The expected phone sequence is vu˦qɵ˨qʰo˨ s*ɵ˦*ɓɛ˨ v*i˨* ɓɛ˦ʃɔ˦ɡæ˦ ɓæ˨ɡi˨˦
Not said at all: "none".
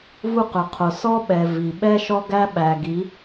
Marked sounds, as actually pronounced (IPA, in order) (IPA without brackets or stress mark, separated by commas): ɔ˦, i˨